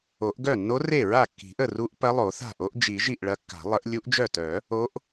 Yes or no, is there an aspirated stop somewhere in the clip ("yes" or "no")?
no